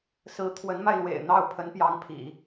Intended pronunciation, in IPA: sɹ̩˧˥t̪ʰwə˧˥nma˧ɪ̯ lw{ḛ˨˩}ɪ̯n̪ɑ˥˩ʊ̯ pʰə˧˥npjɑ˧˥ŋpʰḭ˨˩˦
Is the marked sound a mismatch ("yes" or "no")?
no